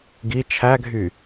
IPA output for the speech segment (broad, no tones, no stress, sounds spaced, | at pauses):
ɡ i t͡ʃʰ æ ɡʱ y